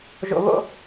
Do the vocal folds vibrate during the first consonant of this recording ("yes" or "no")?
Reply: yes